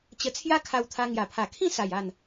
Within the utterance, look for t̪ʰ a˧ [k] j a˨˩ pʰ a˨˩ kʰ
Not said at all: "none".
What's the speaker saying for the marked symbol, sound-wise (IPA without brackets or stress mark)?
ŋ